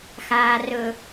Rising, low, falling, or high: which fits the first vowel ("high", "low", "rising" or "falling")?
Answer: low